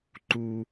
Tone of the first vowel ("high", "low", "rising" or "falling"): high